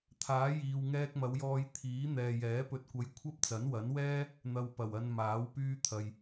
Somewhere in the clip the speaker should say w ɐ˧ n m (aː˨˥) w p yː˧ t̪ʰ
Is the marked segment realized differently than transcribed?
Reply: no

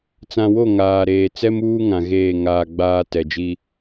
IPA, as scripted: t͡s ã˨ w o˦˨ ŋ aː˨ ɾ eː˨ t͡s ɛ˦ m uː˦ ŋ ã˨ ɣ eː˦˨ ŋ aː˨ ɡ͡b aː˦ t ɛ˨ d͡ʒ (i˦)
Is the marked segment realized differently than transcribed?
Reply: no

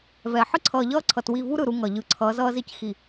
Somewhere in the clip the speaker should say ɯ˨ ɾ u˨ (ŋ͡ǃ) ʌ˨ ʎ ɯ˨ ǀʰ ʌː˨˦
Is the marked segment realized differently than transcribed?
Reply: yes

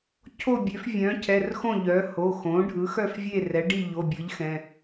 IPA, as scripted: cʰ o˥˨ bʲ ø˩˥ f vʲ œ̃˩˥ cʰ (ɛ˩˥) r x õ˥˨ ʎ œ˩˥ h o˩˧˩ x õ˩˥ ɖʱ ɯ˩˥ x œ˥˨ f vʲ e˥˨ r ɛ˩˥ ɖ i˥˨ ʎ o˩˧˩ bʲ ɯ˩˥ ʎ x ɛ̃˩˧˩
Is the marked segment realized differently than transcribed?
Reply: yes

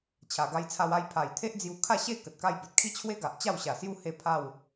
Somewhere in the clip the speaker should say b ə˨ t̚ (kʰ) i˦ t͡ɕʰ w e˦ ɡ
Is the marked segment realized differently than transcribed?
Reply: no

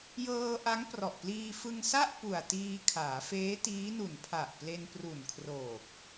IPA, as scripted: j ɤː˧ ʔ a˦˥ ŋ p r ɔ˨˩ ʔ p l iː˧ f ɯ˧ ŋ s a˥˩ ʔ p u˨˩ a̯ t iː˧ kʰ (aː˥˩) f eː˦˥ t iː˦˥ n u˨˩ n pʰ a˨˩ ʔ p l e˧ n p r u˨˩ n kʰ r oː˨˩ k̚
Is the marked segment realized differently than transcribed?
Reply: yes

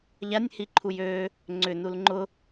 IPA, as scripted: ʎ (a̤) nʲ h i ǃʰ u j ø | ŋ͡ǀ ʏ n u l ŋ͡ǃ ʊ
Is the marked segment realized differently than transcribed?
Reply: yes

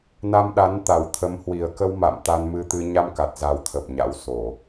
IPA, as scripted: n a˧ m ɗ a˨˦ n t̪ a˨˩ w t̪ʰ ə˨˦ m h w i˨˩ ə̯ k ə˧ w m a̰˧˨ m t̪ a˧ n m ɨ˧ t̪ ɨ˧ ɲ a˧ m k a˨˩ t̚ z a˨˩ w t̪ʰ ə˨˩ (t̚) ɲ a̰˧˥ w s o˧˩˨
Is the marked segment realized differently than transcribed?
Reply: yes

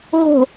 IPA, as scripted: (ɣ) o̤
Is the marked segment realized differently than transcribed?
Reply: no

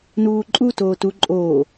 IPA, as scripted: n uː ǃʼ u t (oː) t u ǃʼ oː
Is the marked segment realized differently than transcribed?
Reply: no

